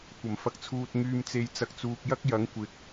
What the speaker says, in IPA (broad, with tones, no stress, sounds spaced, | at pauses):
kʷ ɐ˨˩ m f ɐ˧ k̚ t͡sʰ uː˧ t̚ ŋ yː˧ m t͡s e˧ j t͡s ɐ˨ k̚ t͡s uː˨ k̚ j ɐ˥ k̚ j ɐ˨˥ ŋ kʷ ɪ˨ k̚